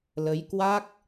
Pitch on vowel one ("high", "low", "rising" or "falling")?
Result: rising